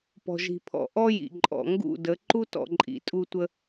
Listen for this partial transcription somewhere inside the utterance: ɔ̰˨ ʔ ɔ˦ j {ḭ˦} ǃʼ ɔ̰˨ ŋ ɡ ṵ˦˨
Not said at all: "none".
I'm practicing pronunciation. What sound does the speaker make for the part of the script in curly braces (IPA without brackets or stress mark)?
ḭ˨